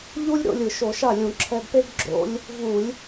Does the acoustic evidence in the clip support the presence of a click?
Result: yes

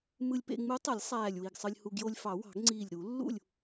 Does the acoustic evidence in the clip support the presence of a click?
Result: yes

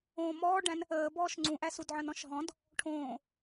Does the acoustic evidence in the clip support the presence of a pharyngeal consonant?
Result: yes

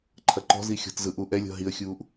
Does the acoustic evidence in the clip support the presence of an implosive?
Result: no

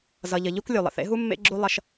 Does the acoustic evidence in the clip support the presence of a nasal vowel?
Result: no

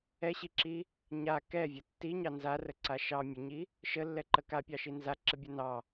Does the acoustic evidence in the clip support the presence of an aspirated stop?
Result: no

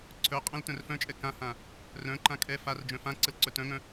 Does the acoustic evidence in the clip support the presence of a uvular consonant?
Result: yes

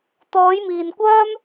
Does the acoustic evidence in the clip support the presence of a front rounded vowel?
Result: yes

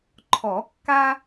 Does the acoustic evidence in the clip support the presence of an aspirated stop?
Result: yes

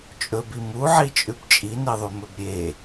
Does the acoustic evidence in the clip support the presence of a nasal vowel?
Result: no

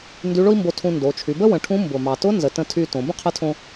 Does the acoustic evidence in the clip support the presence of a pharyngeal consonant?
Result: no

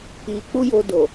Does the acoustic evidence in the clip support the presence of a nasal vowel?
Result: no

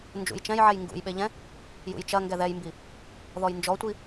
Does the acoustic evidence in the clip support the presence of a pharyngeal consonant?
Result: yes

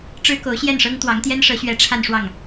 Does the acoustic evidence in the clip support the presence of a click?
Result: no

